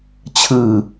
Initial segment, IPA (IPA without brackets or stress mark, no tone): t͡ɕʰ